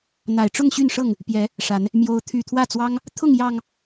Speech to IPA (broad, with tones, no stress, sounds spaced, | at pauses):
n̪ a˨˩ ɪ̯ ʈ͡ʂ ʊ˥˨ ŋ ɕ y˥˨ n ʂ ɤ˥˨ ŋ | p j ɛ˨˦ | ʂ a˨˦ n | m j o˨˦ ʊ̯ t̪ʰ y˨˩ t̪ʰ w ä˥˨ t͡s w ɑ˦ ŋ | t̪ʰ ʊ˥˨ ŋ j ɑ˨˩ ŋ